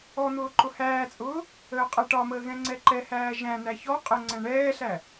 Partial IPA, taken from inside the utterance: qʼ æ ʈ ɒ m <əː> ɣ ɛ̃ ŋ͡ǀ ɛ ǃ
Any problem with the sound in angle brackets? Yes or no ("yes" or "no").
no